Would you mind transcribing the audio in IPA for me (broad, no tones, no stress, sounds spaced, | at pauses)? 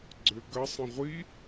ɡ͡ǀ ʏ ɡ ɐ sˤ ə̃ ʁʷ i